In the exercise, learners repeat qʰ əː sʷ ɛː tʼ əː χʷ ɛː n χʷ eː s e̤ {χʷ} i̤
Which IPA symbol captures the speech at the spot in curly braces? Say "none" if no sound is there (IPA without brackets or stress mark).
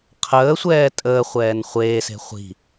χʷ